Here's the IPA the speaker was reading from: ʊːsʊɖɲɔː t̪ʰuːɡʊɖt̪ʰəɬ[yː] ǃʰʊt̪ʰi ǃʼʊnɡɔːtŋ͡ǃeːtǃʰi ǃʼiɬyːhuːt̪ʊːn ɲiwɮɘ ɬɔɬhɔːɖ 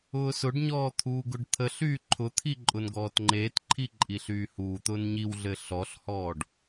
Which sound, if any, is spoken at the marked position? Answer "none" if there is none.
yː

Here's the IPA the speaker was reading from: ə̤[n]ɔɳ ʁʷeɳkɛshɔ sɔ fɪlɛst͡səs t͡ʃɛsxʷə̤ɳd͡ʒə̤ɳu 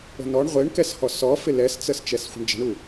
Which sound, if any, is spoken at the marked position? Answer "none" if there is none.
n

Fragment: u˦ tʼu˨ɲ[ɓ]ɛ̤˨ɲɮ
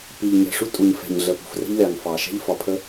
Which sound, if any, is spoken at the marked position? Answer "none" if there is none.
f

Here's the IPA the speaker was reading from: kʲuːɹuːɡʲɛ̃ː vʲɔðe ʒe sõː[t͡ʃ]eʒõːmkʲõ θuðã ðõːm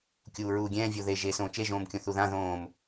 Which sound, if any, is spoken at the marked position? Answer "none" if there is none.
t͡ʃ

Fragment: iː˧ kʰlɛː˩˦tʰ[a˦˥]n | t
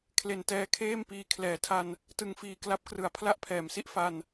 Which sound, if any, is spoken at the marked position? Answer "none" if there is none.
a˧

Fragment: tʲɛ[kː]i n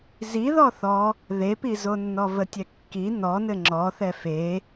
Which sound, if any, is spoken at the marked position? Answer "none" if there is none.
kː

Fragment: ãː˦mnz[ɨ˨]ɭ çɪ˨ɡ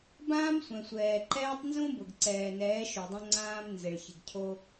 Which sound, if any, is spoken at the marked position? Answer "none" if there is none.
ɪ˨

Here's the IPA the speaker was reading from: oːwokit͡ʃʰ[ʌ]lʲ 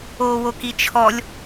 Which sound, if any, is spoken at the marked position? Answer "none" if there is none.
ɔ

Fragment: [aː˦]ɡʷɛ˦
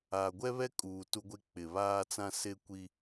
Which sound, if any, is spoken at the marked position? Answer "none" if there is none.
aː˨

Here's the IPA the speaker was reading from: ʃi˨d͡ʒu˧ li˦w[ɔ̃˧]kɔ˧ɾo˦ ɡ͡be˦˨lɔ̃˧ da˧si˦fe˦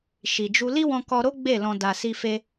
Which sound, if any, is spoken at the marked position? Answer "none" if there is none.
ɔ̃˧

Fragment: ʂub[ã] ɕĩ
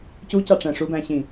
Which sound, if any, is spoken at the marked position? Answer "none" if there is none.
æ̃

